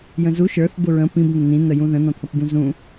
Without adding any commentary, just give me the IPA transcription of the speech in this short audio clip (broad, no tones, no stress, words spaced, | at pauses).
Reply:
jə̃zu ʃə˞θ bʊɹə̃ pĩb n̪ən̪ĩ n̪əjũðə̃ n̪ɔ̃t̪ʰʌpbũzũ